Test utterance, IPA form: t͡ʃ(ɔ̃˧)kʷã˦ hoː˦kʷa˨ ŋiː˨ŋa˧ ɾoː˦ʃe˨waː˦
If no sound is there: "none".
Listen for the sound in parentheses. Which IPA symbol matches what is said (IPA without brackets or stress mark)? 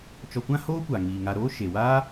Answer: ɔ˧